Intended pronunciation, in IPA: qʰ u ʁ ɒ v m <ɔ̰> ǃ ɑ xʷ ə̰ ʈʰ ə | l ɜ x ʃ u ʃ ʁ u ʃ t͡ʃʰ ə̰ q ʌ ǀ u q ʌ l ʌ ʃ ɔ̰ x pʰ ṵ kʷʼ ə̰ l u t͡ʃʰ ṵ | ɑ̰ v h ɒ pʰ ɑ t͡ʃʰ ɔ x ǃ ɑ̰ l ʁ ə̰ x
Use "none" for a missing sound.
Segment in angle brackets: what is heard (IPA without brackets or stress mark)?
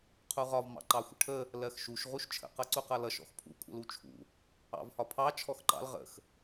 ɑ̰